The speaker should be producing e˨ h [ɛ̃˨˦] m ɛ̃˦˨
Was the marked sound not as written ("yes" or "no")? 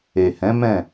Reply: no